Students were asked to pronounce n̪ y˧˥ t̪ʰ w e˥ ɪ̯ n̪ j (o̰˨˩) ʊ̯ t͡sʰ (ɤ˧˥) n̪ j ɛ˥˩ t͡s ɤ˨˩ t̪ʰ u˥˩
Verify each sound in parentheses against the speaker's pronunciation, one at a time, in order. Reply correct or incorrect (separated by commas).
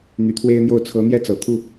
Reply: incorrect, correct